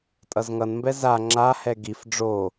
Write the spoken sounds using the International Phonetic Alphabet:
tʼʌzŋʌnmbɛ za ŋ͡ǁahɛ ɡif ɖ͡ʐo

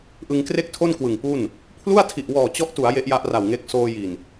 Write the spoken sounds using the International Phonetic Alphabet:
ʔɯ˧ŋkre˥˩k̚tʰo˥˩n kwɯ˨˩ŋpu˥˩n | pʰlu˥˩a̯tʰi˨˩ʔwɔː˨˩ t͡ɕɔ˦˥ʔtu˩˦a̯ je˦˥ʔja˦˥ʔra˨˩wŋe˦˥k̚ soː˧ji˨˩n

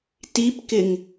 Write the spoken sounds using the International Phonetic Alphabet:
tipkɪŋ

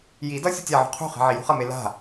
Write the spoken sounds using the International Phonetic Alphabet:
jidʌ sʲutʲaʕṳ qʰṳχɛ̤ ʕijṳχʌme la̤

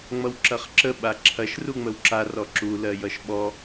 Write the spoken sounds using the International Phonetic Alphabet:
ŋ͡mʌwǁɐχǁə ɓaǁʰɐʃ ruŋ͡məwǁar ɔǁu lɜjʌʃɓɔ

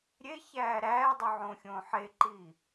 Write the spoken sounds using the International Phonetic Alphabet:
ɾʲe çæːɾæːdˤu ʕõːxʲõːħeǃiː

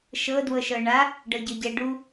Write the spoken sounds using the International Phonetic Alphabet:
ʃɤ dwɤʃɤɳa | ɖɤɟɤɟɛ ɖu

